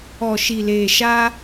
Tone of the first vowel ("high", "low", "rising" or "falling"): low